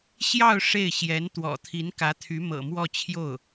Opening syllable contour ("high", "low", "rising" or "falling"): falling